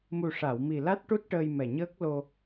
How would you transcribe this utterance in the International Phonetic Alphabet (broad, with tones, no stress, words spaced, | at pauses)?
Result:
mu˨˩ʂa˨˩˨wmi˨˩ la˦˥t̚ʈu˦˥t̚ʈəː˧jmɛ˨˩ ɲəː˦˥k̚lo˧